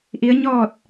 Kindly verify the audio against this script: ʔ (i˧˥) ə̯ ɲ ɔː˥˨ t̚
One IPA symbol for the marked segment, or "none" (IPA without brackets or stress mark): i˧˥